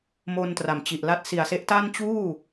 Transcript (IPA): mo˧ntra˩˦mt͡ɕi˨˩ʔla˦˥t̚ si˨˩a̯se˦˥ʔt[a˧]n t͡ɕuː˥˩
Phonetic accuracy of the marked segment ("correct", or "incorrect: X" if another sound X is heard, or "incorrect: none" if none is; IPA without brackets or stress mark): incorrect: a˥˩